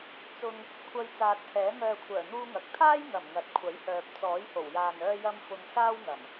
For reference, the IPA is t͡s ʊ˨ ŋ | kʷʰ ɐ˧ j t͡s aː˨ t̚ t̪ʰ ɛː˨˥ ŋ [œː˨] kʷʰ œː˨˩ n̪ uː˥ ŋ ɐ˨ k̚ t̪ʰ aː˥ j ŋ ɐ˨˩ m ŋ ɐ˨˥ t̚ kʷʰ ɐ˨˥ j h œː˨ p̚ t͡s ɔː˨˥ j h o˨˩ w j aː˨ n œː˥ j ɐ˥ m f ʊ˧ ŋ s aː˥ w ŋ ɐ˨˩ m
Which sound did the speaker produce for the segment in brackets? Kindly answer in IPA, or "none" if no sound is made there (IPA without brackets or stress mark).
œː˨